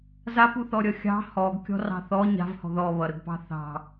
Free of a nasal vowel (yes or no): yes